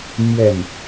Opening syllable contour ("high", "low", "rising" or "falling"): falling